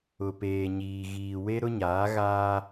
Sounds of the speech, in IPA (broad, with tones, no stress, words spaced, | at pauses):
ʊ˨peː˨ɲiː˨ ɣiː˨we˦ ɾʊ˦ɲaː˨˦ɣaː˦